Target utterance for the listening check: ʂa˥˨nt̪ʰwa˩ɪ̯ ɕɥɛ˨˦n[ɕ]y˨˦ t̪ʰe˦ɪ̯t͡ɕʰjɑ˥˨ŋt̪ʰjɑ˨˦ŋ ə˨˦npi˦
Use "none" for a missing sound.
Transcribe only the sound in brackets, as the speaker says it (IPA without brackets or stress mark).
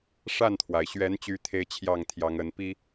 t͡ɕ